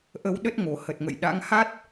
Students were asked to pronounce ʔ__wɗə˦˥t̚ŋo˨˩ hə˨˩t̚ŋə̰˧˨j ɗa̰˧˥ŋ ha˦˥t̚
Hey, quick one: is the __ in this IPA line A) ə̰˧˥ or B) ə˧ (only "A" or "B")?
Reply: B